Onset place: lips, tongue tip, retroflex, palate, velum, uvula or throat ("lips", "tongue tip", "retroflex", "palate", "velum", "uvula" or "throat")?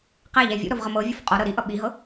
uvula